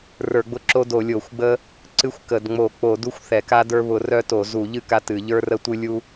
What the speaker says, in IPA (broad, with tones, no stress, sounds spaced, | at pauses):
r ə˞˧˩˧ ɡ͡b ʊ˦ ǁ o˦ d o˧˩˧ lʲ o˧˩˧ xʷ ɡ͡b ə˦ | ǀ ɨ˦ xʷ k ə˧˩˧ d ŋ͡m o˧˩˧ k͡p o˧˩˧ d u˦ xʷ θ ɛ˧˩˧ k a˦ d ə˞˦ β ʊ˧˩˧ r œ˦ t o˧˩˧ z u˧˩˧ ʎ ɨ˦ k a˦ t ɨ˧˩˧ ʎ ə˞˦ r ə˦ tʷ ɨ˦ lʲ u˦